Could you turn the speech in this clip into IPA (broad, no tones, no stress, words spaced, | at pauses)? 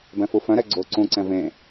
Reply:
bɛ̃fufœ̃ɾɛ ɡ͡ǀo ǀũǀɛ̃ vẽ